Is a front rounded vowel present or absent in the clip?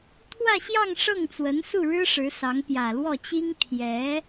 absent